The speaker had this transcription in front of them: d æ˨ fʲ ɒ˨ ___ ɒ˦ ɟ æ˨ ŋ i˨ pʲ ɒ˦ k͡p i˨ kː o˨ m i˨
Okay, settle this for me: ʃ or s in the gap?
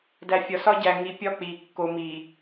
s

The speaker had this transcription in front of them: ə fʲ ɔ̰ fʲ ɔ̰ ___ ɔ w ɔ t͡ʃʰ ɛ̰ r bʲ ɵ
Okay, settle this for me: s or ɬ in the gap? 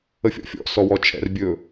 s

